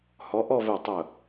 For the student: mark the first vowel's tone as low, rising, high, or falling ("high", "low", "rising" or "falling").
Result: rising